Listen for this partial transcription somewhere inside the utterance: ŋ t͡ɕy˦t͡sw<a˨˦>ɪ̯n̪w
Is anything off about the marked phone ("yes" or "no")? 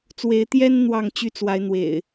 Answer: no